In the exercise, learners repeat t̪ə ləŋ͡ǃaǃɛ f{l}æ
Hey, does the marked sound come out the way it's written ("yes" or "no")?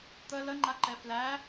yes